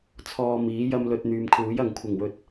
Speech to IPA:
t͡sʰɔː˧miː˨˥jɐ˥mlɵ˧t̚ n̪yː˨mkʰuː˨˥jɐ˨ŋ kʷʰɪ˨˩ŋwɵ˨t̚

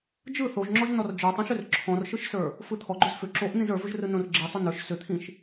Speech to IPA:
d͡ʒɯ θoʒŋ͡ǁɔʒ nɔrd͡ʒə˞tˤõʃʏr ǁʰɔ̃rʃɯʃsə˞ | fɯt̪ʰɔɡ͡ǃʏz fʏ ǁoʔnĩz ə˞vʏʒ rɯnõrɡ͡ǁi sˤʏnə˞ʃ sʏt̪ʰĩʃ

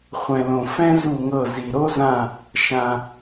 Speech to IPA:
χʷɛ̃˨lõ˨ fɛ̃˥zu˦˨ŋɤ˦˨ zi˨ɾo˥zã˦˨ | ʃã˨

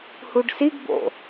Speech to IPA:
huɖsiɡbo̰

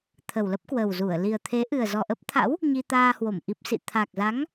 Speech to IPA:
t̪ʰə˨˩wlə˦˥p̚kwə˨˩wzu˧˩ə̯ li˨˩ə̯t̪ʰe˨˦ ʔɨ˨˩ə̯ zɔ˨˩ʔə˦˥p̚t̪ʰa̰˧˥w | ɲi˧t̪aː˧hwo˧˩m ʔi˨˩p̚sḭ˧˨ t̪ʰa˨˩k̚za˨˦ŋ

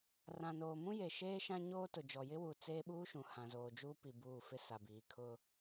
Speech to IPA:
rã˨noː˨ mũ˦je˨ʃeː˦ ʃã˦ ɲoː˦tʊ˨ d͡ʒɔ˨jɪ˦wuː˨ t͡seː˦ɓuː˦ʃũ˨ hã˨zoː˨d͡ʒuː˦pi˨ buː˦˨fɪ˦ sa˨biː˨ kʰʊ˦

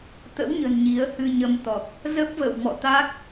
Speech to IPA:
t̪ə̰˧˥wɲə̤˨˩n ɲi˨˦ə̯hɨ˧ɲə˧mt̪ɔ˨˩k̚ | zə˦˥p̚və̰ː˧˨wmɔ̰˧˨ t̪a˦˥k̚

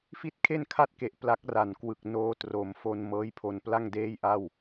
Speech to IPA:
fi˥˩t̚kʰe˥˩nkʰa˥˩t̚ke˨˩ʔ pla˦˥k̚ra˨˩nkwɯ˨˩k̚ noː˧ tro˩˦m fo˧n mɤː˦˥jpʰo˧npla˥˩ŋdeː˥˩j ʔa˥˩w

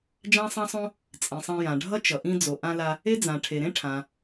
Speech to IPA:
d͡ʒã˥sˤã˥sˤõ˥ | t͡sʼĩ˩sˤã˧jã˩ɖʱʌ˥ t͡ʃʌ˩ʔĩ˧ d͡zo˩ʔã˧la˧ | e˥d͡zã˩ ʈʰe˩ɾẽ˥ʈʰã˩

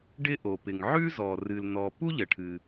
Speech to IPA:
ɖɪ˥ʔo˩pɪ˩ŋ ʕʉ˥zɔ˩ rɨ˩ln̪ɔ˩ pu˥ʎə˩ʈʰɨ˩

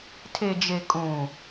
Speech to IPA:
tʰe˨d͡ʒe˨ kʼũ˨

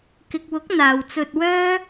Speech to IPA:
kɪ˨k̚wʊ˨˥k̚ n̪aː˨wt͡sɵ˧t̚wœː˥

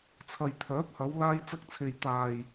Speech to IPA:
t͡sʰɐ˨j t̪ʰœː˨˥p̚hɐ˨˧w laː˧j t͡sɐ˧k̚t͡sʰe˨j t̪aː˨j

